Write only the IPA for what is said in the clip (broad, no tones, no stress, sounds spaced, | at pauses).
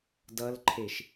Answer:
d ʌ l ǃʰ e ʃ